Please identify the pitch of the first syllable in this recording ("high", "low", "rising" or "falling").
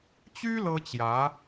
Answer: high